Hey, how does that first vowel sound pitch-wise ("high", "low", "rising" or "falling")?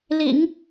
low